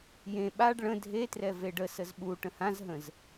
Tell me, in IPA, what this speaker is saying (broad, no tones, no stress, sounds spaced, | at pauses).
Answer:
j ẽ ɓ a ɖ ɭ ə̃ dʱ e t r ɛ v e ɖ ə s ə z ɓ u ʈ ə̃ h ã z ɦ ə̃ z